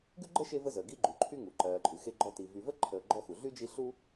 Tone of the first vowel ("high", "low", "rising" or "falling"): high